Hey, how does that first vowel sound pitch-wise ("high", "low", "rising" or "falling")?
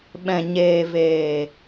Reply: low